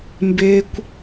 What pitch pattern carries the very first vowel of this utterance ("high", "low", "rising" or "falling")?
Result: high